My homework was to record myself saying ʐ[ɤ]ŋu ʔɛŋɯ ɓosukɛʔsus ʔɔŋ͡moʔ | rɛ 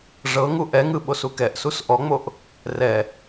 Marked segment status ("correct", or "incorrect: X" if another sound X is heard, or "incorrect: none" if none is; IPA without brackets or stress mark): correct